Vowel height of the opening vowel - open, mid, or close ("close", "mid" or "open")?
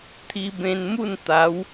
close